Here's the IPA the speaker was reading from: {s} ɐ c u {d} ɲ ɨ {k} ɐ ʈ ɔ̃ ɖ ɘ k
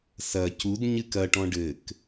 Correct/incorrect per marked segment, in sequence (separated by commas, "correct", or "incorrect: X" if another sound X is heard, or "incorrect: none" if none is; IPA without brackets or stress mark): correct, correct, correct